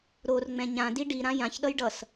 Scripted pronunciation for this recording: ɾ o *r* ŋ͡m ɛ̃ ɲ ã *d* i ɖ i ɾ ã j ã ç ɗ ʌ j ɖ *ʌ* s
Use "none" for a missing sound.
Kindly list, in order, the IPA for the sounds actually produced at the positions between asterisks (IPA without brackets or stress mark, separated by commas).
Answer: r, d, ʌ